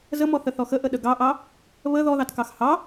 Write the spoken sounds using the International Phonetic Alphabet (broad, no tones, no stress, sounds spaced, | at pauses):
z ə m ɔ θ ə θ ɔ x ə ʔ ə ɗ ə ɡ ɑ ʔ ɑ | β ə ð ɔ ð ɑ t k ɑ x h ɑ